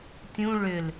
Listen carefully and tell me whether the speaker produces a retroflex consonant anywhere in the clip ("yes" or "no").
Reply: yes